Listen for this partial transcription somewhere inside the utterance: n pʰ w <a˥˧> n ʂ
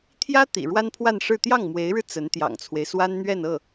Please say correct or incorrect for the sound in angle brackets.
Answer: correct